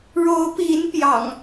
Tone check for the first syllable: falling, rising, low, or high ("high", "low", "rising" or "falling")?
rising